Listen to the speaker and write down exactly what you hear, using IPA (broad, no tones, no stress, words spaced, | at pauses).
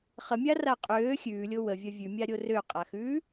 χəmʲara qʼøː xʲʉːlʲo wəvʲɐ vʲʉmʲaɾʲo røqʼaxʉː